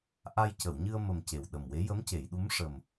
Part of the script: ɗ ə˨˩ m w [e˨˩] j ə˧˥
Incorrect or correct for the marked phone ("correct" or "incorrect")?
incorrect